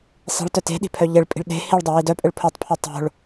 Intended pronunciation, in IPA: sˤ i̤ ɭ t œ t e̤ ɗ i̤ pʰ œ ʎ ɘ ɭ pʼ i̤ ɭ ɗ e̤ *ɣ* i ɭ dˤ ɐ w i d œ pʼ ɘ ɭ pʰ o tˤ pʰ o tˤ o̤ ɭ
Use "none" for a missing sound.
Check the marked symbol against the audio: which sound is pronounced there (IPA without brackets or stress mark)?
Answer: h